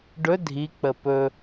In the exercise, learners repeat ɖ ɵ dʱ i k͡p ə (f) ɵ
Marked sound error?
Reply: yes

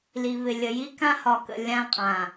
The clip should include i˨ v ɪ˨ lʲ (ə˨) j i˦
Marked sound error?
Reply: no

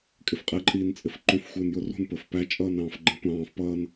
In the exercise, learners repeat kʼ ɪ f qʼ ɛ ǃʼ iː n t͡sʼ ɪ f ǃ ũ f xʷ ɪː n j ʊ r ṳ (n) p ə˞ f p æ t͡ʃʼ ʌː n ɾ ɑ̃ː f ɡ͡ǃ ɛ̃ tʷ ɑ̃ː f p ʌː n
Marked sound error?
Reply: no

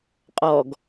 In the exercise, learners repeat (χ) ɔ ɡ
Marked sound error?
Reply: yes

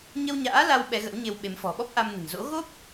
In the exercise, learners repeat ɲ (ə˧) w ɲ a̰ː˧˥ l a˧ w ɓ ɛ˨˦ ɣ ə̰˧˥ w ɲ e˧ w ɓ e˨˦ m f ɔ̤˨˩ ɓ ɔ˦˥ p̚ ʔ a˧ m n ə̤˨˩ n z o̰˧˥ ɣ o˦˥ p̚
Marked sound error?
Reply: no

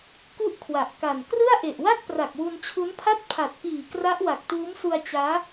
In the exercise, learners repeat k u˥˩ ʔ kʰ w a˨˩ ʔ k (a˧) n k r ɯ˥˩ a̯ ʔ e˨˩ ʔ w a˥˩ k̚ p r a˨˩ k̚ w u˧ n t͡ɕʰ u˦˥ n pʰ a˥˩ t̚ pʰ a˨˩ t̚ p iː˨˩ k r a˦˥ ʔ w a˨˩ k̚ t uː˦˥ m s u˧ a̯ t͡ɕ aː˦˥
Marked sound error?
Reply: yes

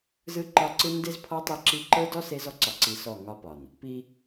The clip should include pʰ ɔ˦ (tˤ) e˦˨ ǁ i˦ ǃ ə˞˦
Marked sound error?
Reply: no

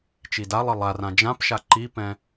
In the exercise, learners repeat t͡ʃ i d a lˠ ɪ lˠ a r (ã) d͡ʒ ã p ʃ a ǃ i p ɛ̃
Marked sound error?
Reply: no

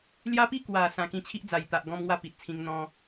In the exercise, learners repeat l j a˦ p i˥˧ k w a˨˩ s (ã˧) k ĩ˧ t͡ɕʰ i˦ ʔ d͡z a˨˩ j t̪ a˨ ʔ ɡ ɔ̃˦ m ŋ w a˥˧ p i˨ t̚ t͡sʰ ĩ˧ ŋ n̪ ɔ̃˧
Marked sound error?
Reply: no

